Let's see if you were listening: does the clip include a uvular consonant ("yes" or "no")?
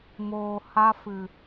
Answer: no